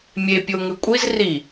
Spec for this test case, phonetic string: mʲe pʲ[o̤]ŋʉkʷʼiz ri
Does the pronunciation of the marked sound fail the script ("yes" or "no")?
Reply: yes